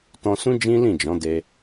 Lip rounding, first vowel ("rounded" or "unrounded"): rounded